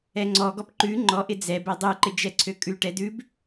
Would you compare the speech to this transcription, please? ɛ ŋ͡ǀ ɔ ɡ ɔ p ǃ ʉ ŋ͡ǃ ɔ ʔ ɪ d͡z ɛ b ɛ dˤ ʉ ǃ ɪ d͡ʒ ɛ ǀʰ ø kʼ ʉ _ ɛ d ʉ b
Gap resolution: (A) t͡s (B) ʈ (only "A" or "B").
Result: B